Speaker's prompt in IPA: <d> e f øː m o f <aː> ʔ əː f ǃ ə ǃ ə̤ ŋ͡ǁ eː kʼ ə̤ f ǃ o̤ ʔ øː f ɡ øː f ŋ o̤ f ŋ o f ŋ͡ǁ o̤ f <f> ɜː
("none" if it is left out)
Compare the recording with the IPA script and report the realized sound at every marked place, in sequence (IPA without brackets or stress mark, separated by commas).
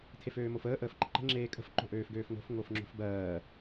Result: tʰ, əː, b